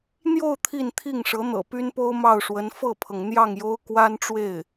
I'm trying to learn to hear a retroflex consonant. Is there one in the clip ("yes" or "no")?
yes